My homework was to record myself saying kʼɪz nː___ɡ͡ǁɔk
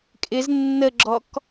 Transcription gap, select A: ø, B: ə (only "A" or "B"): B